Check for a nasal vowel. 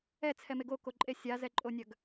absent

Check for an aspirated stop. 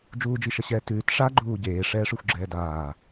absent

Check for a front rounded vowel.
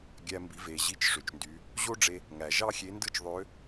present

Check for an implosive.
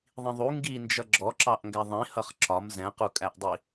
absent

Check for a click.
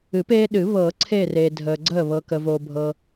present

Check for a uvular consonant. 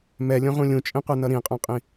present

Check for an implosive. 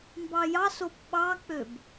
present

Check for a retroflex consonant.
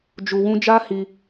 absent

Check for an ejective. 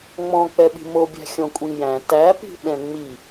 present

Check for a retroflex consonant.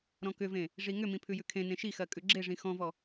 present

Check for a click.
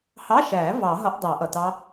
absent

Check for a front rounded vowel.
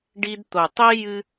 absent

